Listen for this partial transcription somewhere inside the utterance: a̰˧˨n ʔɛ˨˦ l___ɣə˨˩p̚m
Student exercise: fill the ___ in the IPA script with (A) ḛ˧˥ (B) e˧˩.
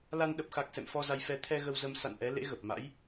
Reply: A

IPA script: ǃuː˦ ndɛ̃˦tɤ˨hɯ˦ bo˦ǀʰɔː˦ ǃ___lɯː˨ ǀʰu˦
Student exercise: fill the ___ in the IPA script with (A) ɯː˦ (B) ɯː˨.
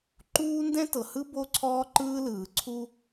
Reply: A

